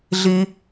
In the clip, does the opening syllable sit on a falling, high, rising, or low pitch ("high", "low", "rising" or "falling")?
high